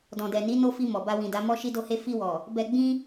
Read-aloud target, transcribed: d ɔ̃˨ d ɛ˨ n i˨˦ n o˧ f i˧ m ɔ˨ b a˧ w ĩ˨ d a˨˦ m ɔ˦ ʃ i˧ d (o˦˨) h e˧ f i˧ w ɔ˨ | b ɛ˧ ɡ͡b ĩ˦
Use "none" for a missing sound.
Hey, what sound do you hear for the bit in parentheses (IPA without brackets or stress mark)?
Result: o˧